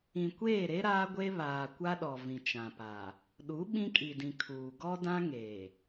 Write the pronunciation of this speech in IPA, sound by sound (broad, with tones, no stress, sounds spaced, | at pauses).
ĩ˨ kʷ eː˦˨ ɾ e˦ ɾ aː˦ ɡʷ e˦ β aː˨ kʷ a˦ ɗ ɔ˨ v ĩ˨ t͡ʃ ã˨ p a˨ | ɗ u˨˦ ɓ ĩ˦ kʼ i˨ d ĩ˨ kʰ uː˨ ɡ ɔ˦ d ã˦ ŋ e˨